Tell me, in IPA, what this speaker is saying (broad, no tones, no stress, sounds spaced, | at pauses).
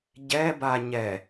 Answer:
ɟ ɛ b a ɲ ɛ